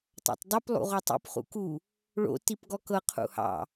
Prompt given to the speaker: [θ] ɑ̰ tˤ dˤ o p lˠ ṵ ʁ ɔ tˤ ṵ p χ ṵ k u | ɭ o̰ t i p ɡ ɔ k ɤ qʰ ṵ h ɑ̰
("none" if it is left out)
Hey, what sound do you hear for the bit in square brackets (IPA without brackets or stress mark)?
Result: tˤ